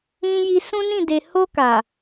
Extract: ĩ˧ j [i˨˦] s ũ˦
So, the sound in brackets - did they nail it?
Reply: no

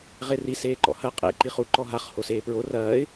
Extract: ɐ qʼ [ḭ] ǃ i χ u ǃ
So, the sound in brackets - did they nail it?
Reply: no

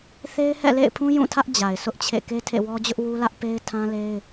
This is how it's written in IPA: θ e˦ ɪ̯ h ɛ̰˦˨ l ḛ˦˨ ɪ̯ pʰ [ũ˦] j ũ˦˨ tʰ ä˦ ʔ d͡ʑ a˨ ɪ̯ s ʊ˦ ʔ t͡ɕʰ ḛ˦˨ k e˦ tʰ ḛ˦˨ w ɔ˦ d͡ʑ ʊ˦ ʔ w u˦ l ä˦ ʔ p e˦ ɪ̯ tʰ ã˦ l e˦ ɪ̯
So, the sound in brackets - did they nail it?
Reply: yes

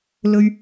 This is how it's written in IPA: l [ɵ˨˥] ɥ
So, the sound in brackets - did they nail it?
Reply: no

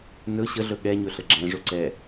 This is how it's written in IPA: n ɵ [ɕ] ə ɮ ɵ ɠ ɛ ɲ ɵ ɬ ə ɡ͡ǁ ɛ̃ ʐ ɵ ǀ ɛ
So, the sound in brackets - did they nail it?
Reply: yes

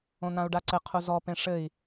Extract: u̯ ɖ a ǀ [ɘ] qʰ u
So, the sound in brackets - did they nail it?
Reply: yes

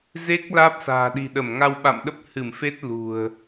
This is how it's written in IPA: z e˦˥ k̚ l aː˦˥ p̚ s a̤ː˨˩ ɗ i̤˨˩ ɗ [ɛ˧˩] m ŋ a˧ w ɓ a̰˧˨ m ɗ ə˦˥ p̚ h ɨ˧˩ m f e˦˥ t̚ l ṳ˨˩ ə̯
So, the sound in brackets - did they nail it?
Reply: no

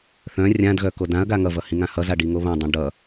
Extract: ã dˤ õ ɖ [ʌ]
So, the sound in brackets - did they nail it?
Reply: yes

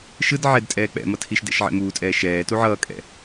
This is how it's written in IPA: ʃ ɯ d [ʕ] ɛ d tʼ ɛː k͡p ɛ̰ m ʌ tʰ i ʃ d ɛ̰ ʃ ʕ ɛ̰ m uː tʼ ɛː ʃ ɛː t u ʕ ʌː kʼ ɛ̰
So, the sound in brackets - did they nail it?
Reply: yes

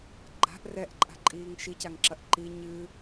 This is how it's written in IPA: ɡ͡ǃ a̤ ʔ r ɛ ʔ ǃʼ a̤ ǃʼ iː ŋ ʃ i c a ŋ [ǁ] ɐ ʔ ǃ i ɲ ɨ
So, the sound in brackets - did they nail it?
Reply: yes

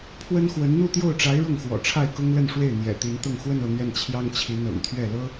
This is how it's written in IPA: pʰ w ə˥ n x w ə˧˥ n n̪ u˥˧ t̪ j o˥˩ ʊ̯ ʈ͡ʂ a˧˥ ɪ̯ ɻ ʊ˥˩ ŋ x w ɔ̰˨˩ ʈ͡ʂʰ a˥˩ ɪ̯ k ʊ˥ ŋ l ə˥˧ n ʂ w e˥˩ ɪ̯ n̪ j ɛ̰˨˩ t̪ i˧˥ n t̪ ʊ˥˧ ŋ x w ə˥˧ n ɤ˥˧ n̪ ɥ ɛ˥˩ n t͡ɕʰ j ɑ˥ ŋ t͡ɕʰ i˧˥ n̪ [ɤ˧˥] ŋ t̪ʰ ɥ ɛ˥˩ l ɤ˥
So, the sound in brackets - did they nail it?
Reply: no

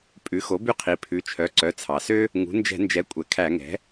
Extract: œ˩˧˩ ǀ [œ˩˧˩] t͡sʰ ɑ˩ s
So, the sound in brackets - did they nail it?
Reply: yes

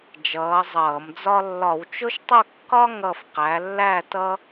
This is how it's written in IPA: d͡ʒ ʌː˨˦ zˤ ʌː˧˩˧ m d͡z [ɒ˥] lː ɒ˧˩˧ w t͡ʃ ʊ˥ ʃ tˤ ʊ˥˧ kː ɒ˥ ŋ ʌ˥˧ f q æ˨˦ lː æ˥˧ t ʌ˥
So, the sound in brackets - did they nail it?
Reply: yes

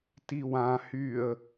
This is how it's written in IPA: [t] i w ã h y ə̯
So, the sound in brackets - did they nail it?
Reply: yes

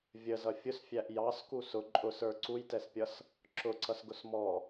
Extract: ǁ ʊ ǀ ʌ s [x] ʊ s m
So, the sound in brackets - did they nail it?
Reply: no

